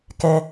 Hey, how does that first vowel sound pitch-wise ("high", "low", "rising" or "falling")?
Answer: high